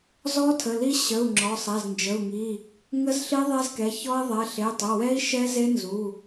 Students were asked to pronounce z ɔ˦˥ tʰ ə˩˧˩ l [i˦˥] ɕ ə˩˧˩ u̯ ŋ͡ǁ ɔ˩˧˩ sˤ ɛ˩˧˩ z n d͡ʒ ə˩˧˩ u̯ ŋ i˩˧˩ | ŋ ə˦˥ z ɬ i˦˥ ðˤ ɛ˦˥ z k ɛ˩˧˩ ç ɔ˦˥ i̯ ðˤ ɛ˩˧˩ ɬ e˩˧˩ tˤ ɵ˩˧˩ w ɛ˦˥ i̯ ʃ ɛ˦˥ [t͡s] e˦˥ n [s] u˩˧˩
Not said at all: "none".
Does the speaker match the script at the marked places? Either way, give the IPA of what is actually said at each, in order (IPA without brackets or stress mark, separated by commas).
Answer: i˦˥, z, z